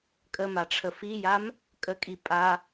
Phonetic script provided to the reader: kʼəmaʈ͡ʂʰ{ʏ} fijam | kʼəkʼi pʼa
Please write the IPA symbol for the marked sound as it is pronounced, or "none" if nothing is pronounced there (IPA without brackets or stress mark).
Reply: ə